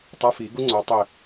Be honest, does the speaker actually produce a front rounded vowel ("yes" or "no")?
yes